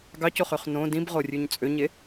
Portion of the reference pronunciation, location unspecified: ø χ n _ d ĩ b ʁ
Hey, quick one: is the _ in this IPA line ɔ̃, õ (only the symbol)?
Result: õ